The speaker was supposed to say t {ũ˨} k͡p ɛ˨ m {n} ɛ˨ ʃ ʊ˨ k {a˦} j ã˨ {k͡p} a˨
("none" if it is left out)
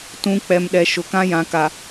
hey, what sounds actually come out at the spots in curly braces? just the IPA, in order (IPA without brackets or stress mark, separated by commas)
ũ˨, ɗ, ã˦, k